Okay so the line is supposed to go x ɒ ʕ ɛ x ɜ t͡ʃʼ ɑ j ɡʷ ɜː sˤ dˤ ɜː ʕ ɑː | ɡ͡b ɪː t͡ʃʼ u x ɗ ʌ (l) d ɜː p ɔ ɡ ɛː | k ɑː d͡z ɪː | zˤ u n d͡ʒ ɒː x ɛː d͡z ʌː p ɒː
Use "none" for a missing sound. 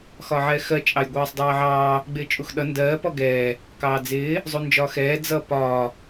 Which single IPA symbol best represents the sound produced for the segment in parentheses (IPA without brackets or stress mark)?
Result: n